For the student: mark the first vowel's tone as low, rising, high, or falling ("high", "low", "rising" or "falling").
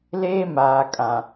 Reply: high